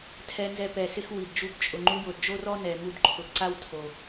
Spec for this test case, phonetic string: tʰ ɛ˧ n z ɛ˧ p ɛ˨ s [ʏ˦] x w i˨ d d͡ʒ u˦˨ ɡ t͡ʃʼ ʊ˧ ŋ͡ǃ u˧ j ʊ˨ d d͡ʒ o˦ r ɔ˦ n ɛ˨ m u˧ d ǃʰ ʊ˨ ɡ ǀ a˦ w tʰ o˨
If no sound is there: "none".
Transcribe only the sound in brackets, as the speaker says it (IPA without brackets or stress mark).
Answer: ɪ˦